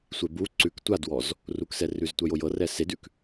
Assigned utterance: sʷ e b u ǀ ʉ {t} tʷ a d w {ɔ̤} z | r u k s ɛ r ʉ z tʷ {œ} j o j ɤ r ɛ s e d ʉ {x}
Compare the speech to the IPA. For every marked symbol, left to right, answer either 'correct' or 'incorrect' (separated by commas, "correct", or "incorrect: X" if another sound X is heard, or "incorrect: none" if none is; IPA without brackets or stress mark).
incorrect: k, incorrect: ɔ, correct, incorrect: k